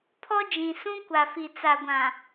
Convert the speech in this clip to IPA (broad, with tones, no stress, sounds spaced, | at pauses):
pʰ ɔ˦ d͡ʒ ĩ˨ s ũ˦ kʷ a˨ f i˨ t͡s a˨ ɡʷ ã˨